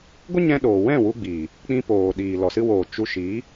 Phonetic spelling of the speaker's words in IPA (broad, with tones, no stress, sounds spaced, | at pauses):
ɡʷ ə˦ ɲ ɛ̃˧ ɗ oː˨ w ɛ̃˦˨ w u˧ ɡ͡b iː˨ | k͡p ĩ˧ p oː˨ ɗ iː˨ l ɔ˨ s ɨ˧ w oː˨ t͡ʃ u˧ ʃ iː˨˦